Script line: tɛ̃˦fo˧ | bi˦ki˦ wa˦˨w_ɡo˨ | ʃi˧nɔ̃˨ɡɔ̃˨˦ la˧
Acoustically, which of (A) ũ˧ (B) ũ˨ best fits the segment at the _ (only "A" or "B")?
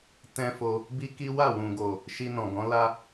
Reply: B